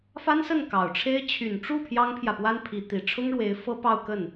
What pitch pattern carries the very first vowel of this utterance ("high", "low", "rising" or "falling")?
high